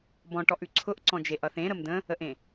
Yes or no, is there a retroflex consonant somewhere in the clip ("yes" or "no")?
yes